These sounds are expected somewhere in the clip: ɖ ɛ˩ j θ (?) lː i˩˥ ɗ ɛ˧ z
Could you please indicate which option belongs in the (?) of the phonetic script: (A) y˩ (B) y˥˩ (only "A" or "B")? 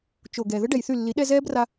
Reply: B